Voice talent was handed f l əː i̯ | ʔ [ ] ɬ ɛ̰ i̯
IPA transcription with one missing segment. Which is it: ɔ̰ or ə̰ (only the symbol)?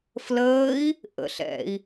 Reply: ə̰